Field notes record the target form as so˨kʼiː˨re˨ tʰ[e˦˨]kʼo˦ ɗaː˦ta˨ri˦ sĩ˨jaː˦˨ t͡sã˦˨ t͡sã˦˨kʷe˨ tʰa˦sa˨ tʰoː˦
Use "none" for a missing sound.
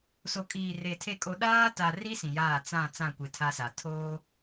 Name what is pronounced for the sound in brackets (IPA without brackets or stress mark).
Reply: e˦˨